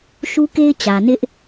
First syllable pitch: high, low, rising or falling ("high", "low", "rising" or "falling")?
high